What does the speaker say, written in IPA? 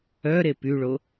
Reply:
œ ɾ e p y ɭ o

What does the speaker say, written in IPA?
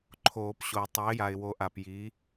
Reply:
ǃʰ oː˨˩˦ p ɕ o˨˩˦ tˤ ɛ˨˥ ɪ̯ j a˨ ɪ̯ w o˨˥ ʔ a˨ p j i˨˥

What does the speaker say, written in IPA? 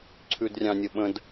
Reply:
ǀʰ ʉ d rʲ ɑ̃ nʲ ə ɓ ə̃ d

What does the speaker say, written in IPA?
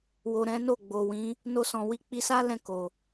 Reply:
w o˨ ɾ ɛ̃˨˦ n o˦˨ ɡ͡b o˨ w ĩ˨˦ | n o˧ s ɔ̃˨ w i˧ k͡p i˧ s a˦ l ɛ̃˦˨ k o˨

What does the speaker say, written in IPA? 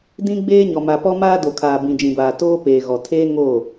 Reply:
d ĩ˦ ɡ͡b eː˦ ɲ ɔ˨ m a˨ p ɔ˦ m aː˦ d o˨ kʰ aː˨ b ĩ˨ d͡ʒ ĩ˨ b aː˨ t oː˦ p eː˨ ɣ ɔ˨ tʰ eː˦ ŋ o˦˨

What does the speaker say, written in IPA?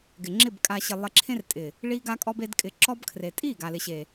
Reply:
ɡ ɪ˨ ŋ͡ǁ ɪ˦˨ b kʼ a˨ ɕ ɪ˨ lˠ ɪ˧ ǁʰ ẽ˦ r tʼ ɪ˨ | ɭ i˧ ɡ a˧ kʼ ɔ˧ b e˧ d kʼ ɪ˨˦ ǁ ɔ˧ b kʰ r e˨ tʼ i˦˨ ɡ a˨ l ɪ˨ ɕ e˨

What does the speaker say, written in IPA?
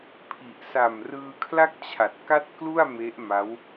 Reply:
pʰ i˨˩ ʔ s a˨˩ m r ɯː˧ kʰ l a˥˩ k̚ t͡ɕʰ a˨˩ t̚ k a˥˩ t̚ k l u˥˩ a̯ m e˦˥ ʔ m a˦˥ w

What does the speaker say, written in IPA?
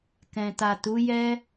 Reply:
k ɛ̃˨ t a˨ t u˨˦ j ɛ˦

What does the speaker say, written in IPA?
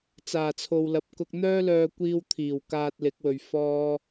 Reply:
t͡s aː˨˩ t͡sʰ o˨ w l ɐ˨ p̚ k ʊ˧ k̚ n̪ œː˥ l œː˧ kʷ iː˧ w t̪ʰ iː˨˩ w k aː˧ t̚ l ɪ˨˥ k̚ w ɵ˨ ɥ f ɔː˥

